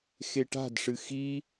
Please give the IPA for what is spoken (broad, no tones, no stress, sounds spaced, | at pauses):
x e ʈ a̤ d ʂ ɨ x i